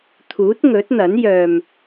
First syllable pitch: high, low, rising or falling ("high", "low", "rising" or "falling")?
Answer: rising